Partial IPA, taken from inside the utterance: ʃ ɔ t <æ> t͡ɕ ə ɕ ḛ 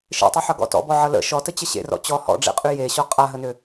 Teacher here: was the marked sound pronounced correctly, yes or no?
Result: no